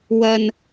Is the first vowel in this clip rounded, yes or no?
no